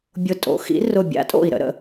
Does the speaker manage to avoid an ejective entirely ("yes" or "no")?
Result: no